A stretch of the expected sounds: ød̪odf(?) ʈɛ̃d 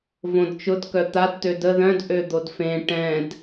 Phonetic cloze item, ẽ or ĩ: ẽ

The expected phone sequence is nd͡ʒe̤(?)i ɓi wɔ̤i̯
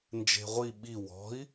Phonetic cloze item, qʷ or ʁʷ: ʁʷ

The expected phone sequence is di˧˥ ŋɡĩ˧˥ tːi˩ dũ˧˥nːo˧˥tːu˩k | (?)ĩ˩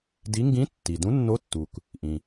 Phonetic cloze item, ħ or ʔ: ʔ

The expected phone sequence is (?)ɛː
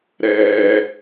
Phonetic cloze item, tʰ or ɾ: ɾ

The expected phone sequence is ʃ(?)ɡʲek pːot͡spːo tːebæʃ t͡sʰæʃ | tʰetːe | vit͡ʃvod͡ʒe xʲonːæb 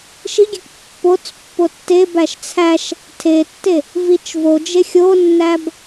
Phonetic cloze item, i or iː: i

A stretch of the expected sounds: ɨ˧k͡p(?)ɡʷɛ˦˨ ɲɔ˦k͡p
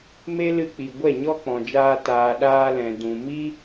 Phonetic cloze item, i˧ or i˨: i˨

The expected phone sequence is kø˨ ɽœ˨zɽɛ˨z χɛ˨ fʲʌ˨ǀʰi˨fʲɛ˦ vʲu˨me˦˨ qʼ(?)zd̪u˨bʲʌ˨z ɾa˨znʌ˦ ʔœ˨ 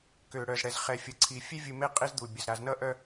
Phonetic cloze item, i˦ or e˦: i˦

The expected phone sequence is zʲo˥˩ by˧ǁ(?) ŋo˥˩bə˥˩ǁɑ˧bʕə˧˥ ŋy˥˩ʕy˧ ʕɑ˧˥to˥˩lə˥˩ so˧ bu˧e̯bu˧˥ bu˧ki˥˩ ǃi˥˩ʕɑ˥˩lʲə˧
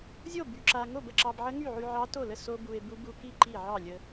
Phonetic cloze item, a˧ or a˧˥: a˧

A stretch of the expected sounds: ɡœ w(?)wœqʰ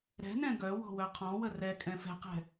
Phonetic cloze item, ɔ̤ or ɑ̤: ɔ̤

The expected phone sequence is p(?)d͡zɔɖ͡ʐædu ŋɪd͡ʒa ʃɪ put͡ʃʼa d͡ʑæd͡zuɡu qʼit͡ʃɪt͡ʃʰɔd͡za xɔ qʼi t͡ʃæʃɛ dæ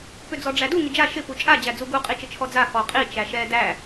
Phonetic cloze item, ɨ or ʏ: ʏ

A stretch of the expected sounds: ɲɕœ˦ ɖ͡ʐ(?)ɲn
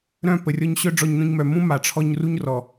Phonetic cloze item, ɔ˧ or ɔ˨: ɔ˧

